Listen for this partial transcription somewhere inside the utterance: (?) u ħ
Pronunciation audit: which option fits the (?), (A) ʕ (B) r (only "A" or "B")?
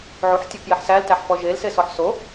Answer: A